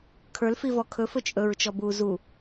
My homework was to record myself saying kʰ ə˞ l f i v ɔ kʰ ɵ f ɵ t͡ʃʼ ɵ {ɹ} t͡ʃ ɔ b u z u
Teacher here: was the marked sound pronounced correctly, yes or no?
yes